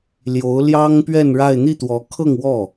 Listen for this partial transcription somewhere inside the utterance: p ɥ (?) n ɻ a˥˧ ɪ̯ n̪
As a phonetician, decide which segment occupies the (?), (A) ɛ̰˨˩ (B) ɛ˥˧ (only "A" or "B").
B